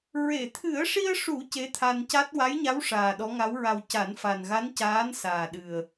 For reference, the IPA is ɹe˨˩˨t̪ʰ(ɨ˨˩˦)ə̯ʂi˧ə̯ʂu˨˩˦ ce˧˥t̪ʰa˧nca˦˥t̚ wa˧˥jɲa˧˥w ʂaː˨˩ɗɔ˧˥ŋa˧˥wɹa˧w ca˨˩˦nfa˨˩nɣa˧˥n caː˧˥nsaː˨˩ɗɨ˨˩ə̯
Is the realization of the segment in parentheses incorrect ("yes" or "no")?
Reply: no